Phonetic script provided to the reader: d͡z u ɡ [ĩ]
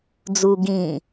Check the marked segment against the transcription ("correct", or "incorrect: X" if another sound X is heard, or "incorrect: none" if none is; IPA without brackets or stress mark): correct